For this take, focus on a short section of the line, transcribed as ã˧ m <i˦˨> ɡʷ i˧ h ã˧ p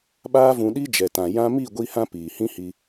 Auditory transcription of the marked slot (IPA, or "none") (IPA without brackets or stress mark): i˦˨